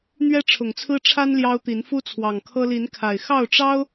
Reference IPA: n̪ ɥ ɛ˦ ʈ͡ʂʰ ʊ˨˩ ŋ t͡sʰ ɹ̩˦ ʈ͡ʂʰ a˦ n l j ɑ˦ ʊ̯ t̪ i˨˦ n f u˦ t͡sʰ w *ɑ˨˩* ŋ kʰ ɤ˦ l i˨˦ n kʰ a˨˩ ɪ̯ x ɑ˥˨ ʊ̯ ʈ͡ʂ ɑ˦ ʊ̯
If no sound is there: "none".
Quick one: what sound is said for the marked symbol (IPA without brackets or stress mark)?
ɑ˨˩